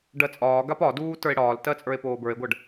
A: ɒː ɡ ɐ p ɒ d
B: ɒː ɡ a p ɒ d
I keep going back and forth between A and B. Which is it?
B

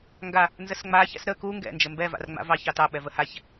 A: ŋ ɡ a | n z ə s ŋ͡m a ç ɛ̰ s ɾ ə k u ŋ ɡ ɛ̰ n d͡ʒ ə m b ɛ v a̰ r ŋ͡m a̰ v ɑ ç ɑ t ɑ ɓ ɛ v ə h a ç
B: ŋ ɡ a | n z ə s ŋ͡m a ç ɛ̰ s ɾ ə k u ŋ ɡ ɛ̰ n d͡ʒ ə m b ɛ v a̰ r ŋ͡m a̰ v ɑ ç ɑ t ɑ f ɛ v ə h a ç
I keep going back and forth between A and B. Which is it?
A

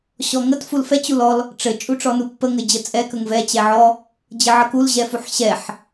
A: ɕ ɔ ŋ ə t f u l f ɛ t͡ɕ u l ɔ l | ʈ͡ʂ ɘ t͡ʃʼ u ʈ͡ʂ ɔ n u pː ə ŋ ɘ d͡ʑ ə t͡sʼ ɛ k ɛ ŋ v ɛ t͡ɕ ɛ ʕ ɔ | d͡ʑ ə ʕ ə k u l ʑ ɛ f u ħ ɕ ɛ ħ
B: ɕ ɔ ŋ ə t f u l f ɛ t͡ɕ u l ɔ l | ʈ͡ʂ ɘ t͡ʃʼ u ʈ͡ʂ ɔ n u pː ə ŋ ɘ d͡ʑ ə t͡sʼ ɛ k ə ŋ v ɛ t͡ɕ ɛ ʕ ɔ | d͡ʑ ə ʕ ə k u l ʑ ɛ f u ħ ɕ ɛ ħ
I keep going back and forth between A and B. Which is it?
B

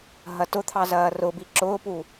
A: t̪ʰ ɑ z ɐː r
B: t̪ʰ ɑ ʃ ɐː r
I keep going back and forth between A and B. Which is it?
A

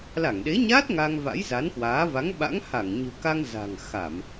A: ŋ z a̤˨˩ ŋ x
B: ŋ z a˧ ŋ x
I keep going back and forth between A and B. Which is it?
A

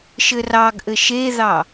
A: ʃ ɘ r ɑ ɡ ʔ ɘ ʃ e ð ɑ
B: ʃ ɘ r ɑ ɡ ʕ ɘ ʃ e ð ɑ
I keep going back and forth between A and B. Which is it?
A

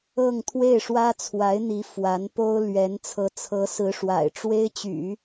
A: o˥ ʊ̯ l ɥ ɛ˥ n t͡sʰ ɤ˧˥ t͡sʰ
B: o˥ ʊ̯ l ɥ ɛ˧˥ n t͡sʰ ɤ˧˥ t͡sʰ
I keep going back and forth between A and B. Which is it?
B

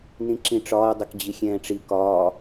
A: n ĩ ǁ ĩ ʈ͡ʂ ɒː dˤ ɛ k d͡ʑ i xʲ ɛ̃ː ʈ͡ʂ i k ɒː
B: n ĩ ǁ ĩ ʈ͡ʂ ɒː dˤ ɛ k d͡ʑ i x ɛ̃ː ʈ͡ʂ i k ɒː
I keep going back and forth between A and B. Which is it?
A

